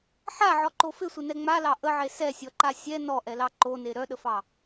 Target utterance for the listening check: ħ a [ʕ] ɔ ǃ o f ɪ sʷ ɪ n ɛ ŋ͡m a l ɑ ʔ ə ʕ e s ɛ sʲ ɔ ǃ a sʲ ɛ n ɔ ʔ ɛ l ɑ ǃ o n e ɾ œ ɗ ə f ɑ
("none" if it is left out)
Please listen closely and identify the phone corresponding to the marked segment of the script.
ʕ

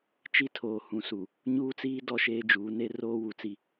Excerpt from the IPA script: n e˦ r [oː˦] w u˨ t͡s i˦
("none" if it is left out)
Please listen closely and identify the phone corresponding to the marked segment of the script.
oː˦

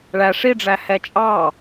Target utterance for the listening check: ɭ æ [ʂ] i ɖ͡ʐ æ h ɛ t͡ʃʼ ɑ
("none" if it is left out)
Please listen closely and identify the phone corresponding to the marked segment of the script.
ʂ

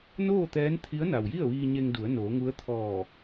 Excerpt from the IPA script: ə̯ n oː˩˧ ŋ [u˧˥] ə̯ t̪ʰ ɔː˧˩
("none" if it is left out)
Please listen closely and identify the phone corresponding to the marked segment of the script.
u˧˥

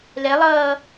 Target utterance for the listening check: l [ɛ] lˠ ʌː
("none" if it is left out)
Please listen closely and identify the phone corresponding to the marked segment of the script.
ɛ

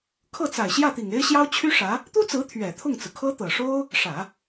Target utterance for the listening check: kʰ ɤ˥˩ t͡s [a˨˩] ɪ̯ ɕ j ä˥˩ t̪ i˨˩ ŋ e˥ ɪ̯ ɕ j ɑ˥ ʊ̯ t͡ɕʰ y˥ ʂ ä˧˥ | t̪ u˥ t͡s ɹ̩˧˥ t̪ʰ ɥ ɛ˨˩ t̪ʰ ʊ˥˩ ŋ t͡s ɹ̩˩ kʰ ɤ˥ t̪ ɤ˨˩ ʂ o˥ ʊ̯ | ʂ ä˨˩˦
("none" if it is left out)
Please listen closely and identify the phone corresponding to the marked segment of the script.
a˨˩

